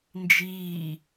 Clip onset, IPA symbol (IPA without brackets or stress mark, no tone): n